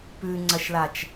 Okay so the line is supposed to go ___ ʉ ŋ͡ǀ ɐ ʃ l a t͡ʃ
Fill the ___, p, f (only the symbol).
p